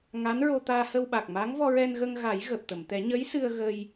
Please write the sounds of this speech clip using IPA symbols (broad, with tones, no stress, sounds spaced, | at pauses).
ŋ a˧˥ n ɹ o˧ t̪ aː˧ h ə˧ w ɓ a˨˩ k̚ m a˧˥ ŋ v ɔ˧ ɹ ɛ˧ n ɣ ə˧ ŋ ɣ a˨˩˦ j ɣ əː˨˩ p̚ t̪ ə˨˩˨ m t̪ ɛ˨˩˦ ɲ ə˧˥ j s ɨ˧ ə̯ ɣ ə˧ j